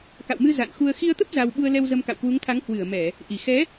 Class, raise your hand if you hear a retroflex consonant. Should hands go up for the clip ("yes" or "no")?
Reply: no